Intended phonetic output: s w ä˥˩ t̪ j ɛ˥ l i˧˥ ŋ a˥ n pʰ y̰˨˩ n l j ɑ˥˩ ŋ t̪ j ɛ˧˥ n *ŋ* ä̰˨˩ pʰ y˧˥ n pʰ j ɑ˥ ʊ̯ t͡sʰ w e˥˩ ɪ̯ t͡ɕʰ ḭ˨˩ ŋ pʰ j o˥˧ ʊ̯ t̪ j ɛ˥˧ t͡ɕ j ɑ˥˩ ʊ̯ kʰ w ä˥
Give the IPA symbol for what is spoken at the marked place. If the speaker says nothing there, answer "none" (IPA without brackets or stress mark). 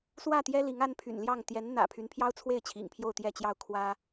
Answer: n̪